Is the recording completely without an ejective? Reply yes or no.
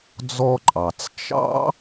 no